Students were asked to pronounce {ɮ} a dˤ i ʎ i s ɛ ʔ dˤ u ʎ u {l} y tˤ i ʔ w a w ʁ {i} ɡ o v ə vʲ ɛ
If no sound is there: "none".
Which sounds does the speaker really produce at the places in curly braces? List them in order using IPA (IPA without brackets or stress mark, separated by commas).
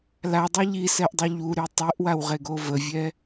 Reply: l, ɾ, e